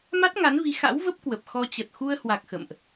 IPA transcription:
ma˦˥t̚ŋa˨˦nvi˨˦ xa̰˧˥wvə˦˥p̚ kwə˨˩p̚ xɔ˧ t͡ɕə˨˩t̚xu˧ə̯hwa˨˩k̚ xə̰˧˨mʔ

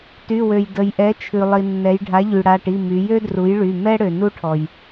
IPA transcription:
ty˩˧˩wø˩j də˩jʔɛ˩˥t͡ʃʰʉ˩ lˠi˩nːɛ˩˧jɖʱa˩˥ʎy˩ ɽa˩˧˩ʈi˩˧˩ my˩˧jø˥dru˩˥jɭy˩˧˩ mɛ˥ ɽø˩nu˥ʈʰɔ˩j

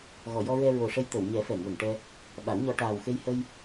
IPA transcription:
ɣɔ˨˩˨jɔ˧ɹɛ˧ ɹo˨˩ʂə˧j t̪ə˨˩˨wɲɛ˨˩˦ fɛ˨˩˨ŋwə˨˩˨ŋʈɛ˧ | ɓa˨˩˦wɲɔ˧ ʈaː˨˩wxe˧jhə˧j

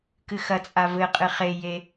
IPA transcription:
kɨxɐt͡sʼa vɘqʼɨ χeje

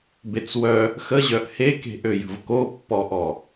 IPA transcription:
bet͡swœ | xəʑœʔ heke̤ʔø jə̤vkopːɔʔɔ

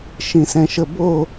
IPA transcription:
ʃĩsɛ̃ʃəbo

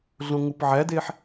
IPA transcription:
ɮõŋupʕædeħ

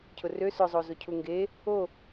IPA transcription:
cʰʊrø sʊzˤo zocʰuŋɡe | o

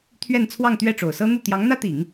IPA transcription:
t̪ʰɥɛ˥˧nt͡sʰwɑ˥˧ŋt̪ɥɛ˥˩ʈ͡ʂo˨˩ʊ̯ sɤ˥n̪u˥˩ t̪jɑ˧˥ŋn̪ä˥t̪i˨˩˦ŋ

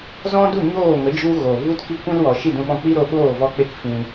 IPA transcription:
zɔ̃˦du˦˨ ɲoː˦˨ŋə˨˦ d͡ʒu˦ɣo˨ vu˦tki˦kʷĩ˦lwɔ˨ ʃi˦˨dũ˧ɓɔ̃˧ k͡pi˦ɾo˧ɓoː˦˨ vɔ˦k͡pe˦kfĩ˧

